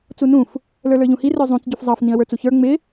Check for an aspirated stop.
absent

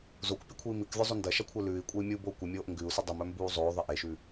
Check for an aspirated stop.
present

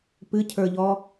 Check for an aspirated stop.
present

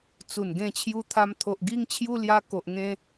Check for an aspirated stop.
present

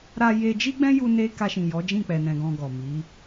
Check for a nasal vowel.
present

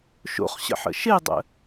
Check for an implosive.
absent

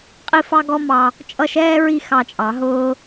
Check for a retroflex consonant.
absent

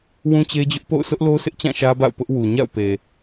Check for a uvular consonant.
absent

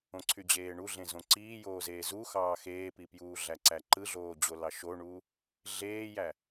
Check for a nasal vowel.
present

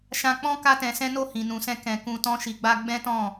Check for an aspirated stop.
absent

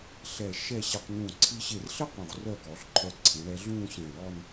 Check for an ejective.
absent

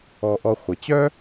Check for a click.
absent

